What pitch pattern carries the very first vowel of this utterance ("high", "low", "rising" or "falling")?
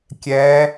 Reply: rising